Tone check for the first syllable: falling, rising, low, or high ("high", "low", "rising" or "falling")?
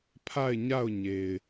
falling